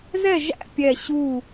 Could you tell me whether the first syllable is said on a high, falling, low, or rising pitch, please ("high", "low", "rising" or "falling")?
falling